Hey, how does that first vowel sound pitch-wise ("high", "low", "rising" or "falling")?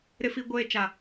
high